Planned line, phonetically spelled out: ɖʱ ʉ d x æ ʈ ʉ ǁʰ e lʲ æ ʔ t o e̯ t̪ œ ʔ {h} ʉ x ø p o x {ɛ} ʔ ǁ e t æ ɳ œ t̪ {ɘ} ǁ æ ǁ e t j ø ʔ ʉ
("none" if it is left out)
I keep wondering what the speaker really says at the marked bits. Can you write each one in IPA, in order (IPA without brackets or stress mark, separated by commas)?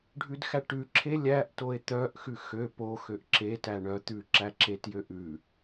x, ø, ʉ